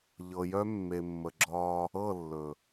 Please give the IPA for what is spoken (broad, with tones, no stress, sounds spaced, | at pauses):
ʎ ɤ˨ j œ˦ mː e˨ mː ə˨ ɡ͡ǁ ɒː˦ | ɤ˦˨ lː ɵ˨